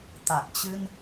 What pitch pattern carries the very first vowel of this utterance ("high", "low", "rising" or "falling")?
low